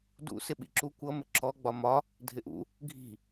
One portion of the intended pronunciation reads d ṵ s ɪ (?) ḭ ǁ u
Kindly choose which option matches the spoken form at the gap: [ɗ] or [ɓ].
ɓ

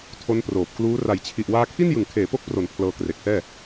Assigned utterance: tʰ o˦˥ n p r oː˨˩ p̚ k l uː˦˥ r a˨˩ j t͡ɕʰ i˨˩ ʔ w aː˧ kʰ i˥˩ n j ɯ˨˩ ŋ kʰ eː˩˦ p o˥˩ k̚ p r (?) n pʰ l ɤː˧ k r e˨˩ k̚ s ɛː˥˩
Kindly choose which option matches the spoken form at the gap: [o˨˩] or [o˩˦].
o˩˦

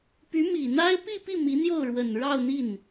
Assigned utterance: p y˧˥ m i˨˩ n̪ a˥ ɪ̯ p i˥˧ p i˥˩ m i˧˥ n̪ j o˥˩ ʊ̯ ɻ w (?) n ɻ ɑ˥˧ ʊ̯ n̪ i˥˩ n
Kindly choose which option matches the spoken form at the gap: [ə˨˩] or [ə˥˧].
ə˨˩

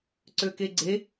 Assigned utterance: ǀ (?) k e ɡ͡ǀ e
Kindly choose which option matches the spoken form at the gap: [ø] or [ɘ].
ø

